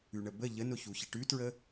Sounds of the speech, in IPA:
ʉ ɳ ə b ə ʎ ə n ʊ ç u ç ɐ ʈ ʉ t ɹ ə

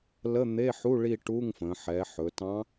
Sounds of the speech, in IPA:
l ə˧˥˧ n̪ e˧˥˧ ħ u˧˥˧ ɭ i˥˧ ʈ u˧˥˧ ŋ f ə̃ː˩˧ ħ ɛ˩˧ ħ ɵ˩˧ t ɑ̃˧˥

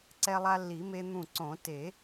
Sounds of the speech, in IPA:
ǀ ɛ˧ lˠ a˧ lː i˨˩˦ m e˧ n̪ ũ˧˩ ǀ õ˨˩˦ t e˨˩˦

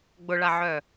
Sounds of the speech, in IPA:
ɡ͡b ʊ ɭ a ʕ œ

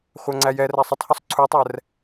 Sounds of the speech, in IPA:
χʷ æ ŋ͡ǀ æ j ɛ r æ sˤ ɪ tˤ h u sˤ ǀʰ u tˤ ɛ r

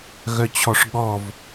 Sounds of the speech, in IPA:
ɣ œ t͡ɕʰ ɔ ʂ ɠ ɔ v

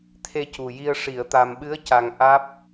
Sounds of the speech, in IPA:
t̪ʰ e˧ c u˨˩ j i˧ ə̯ ʂ i˨˩˨ ə̯ t̪ a˨˩ m ɓ ɨ˧˥ ə̯ c a˨˩ ŋ ʔ aː˦˥ p̚

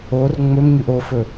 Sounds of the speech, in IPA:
o r ŋ͡m ɵ m ɲ ʉ ʔ o f ɵ

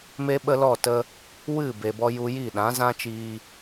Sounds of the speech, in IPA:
m e˦ ɓ ə˦ l ɔ˦˨ t ə˧ | w ɨ˦˨ b e˨ b ɔ˧ j u˧ j i˦˨ ɗ ã˨˦ z ã˦ t͡ʃ iː˧

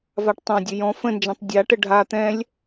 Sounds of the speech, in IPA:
v a ʈ tˤ ã dʲ ɵ j ɔ̃ f ə̃ n d͡ʒ ã tˤ dʲ a ʈ ə ɖʱ a t̪ ɛ̃ lʲ

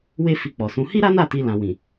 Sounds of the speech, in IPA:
w e˦ f i˧ k͡p ɔ˨ s ũ˧ h i˦ ɾ a˦ n a˦˨ t i˧ l ã˨ w ĩ˨

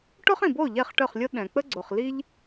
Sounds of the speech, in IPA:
ʈ o˥ χ ĩ˩ b o˥˩ ʎ ɛ˥˩ χ ʈ œ˥˩ χ lʲ o˥ ɗ ɛ̃˩ k͡p ə˥ ɡ͡ǀ o˩ χ l i˥ ʎ

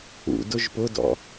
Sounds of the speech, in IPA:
ṵ d ʊ ʒ p ʊ d ɔ̰

